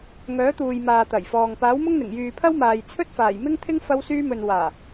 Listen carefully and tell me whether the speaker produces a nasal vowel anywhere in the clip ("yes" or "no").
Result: no